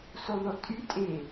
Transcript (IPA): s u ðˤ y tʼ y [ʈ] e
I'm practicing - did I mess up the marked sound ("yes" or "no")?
yes